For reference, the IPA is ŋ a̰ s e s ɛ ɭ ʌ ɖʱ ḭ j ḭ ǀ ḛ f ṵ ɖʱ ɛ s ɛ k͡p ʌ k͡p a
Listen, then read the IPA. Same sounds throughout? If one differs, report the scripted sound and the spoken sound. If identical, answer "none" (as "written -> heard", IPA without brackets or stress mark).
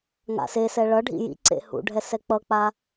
f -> h